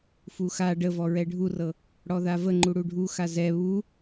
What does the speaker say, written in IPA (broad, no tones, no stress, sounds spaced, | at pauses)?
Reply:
f u x a ɖ ə v ɔ ɹ ɛ ɖʱ u r ɤ | ɽ ɔ ð a v ə ŋ͡ǃ u ɽ u ɖʱ u x a z ɛ β u